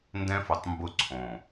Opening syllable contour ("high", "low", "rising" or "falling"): high